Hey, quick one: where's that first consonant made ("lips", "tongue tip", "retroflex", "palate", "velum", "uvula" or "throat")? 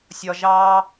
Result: tongue tip